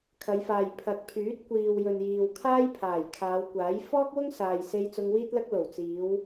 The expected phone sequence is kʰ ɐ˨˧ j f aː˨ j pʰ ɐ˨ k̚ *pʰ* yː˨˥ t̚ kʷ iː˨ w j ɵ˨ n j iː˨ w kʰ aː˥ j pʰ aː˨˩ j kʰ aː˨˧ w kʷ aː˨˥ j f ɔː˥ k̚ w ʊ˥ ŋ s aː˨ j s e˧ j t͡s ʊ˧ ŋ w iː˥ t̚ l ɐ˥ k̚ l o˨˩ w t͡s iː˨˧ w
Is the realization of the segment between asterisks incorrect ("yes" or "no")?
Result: no